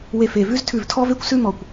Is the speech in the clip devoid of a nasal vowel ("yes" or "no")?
yes